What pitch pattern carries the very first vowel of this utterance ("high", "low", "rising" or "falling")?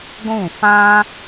falling